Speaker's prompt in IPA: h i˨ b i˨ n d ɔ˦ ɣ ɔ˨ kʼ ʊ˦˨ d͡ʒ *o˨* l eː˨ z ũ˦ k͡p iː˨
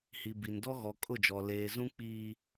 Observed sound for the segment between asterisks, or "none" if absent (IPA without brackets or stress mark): ɔ˨